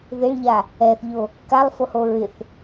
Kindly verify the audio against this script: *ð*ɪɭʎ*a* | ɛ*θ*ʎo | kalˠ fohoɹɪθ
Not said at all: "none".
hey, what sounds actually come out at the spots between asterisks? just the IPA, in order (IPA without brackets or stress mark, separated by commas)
ð, a, θ